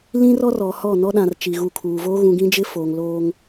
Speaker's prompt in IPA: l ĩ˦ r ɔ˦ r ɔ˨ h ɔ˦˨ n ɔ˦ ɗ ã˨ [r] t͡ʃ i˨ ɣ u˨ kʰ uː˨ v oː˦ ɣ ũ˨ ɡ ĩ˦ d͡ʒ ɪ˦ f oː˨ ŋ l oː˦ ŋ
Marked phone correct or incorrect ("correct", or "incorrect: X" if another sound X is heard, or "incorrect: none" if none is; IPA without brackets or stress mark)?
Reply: correct